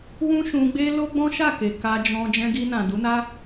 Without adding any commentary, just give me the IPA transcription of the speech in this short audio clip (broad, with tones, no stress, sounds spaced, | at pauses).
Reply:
w ũ˦ ʃ ũ˧ ɡ͡b e˦ l o˦ ɡ͡b ɔ̃˦ ʃ a˦˨ k e˨ k a˧ d͡ʒ ɔ̃˧ d͡ʒ ɛ̃˧ ɡ i˧ n ã˨ d u˨˦ n a˦